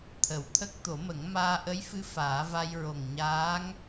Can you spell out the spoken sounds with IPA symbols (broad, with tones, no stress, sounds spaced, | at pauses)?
t̪ʰ ə˨˩ w t̪ʰ ə˦˥ k̚ t̪ o˨˩˦ m ə˨˩˦ ŋ m aː˧ ʔ ə˧˥ j f ɨ˧˥ f aː˨˩˦ v a˧ j ɹ o˨˩ ŋ ɲ aː˧˥ ŋ